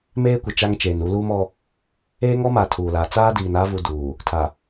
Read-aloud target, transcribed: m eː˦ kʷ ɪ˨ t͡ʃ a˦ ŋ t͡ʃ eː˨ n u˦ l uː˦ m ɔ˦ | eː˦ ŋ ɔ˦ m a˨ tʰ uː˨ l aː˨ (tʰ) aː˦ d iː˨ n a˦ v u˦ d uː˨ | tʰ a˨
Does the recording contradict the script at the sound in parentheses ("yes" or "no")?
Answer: yes